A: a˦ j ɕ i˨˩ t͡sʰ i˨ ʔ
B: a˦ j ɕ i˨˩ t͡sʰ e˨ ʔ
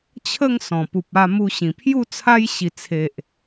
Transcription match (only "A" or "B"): B